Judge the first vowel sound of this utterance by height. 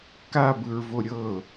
low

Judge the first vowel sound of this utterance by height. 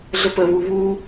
mid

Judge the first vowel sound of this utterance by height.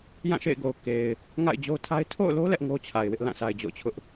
low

